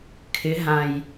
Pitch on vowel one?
rising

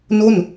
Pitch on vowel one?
falling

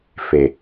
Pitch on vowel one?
low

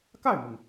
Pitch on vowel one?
falling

